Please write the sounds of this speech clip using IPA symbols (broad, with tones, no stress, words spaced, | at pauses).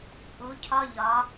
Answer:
ʔu˨˦cʰɒ˦ʎɒ˨˦